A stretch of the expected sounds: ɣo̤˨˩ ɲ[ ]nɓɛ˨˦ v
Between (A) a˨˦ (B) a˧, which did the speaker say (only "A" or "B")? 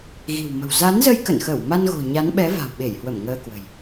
A